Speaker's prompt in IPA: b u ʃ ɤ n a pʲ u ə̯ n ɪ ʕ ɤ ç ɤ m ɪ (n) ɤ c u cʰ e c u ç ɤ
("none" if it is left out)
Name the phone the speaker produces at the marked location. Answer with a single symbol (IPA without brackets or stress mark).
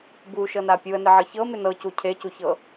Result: n